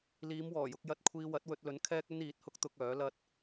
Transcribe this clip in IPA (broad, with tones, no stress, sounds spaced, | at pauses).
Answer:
l iː˨˧ m w ɔː˨˩ j ʊ˧ k̚ j ɐ˧ t̚ kʷʰ iː˧ w ɐ˨˥ t̚ w ɵ˧ t̚ l ɵ˨˥ n kʰ ɛː˥ k̚ ɵ˥ n iː˨˥ t̚ h ʊ˥ k̚ t̪ ʊ˧ k̚ œː˨˥ l ɐ˥ t̚